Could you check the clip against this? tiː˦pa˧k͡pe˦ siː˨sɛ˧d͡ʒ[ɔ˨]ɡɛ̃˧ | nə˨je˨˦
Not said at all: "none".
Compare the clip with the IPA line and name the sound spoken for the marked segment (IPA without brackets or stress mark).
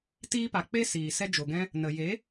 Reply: o˨